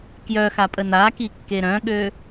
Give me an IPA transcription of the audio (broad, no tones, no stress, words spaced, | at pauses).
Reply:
kjœxapʼə nakikːe ɾœ̃ɠø